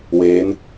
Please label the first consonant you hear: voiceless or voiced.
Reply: voiced